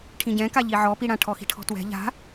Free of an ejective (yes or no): yes